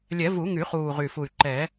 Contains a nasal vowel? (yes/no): no